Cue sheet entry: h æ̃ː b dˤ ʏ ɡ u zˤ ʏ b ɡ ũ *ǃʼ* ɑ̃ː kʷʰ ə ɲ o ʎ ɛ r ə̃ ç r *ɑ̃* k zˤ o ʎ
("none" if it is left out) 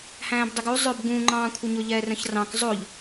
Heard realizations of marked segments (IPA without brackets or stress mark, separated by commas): ŋ͡ǃ, ɑ̃